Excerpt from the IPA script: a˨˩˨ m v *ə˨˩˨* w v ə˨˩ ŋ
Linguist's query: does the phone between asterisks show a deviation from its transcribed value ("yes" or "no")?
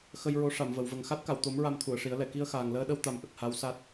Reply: no